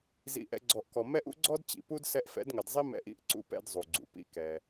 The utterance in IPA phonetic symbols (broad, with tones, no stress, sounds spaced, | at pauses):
z ḭ˧ ʔ ɛ̰˧ ɡ͡ǀ ɔ˨ ʔ k ɔ˨ m ɛ˦ ʔ ṵ˦ ɡ͡ǀ ɔ˦ d t͡ɕ ḭ˨ p u˦ d s ɛ˧ ʔ f ɛ̰˨˦ d ŋ ɐ˨ d zˤ i˦ m ɛ̰˧ ʔ ḭ˦ ʔ ǀ ṵ˦ p ɛ̰˦ d zˤ u˨ ɡ͡ǀ ṵ˨ p ḭ˦ k ɛ˧